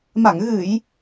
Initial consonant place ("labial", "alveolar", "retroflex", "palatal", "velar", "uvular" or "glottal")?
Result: labial